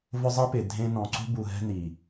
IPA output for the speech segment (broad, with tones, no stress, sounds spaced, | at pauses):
v ʊ˦ zˤ e˦ p ɪ˨ dʱ ẽ˦ n ɔ̃˨ ǀ ṳ˦ b u˨ ɦ ɛ̤˦ n i˨